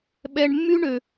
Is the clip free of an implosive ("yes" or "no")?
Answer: no